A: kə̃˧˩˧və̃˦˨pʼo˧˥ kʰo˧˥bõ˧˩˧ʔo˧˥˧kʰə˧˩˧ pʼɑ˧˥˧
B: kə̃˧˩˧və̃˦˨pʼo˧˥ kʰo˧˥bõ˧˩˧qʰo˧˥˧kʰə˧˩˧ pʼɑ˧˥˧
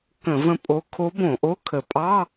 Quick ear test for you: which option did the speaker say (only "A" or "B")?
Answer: A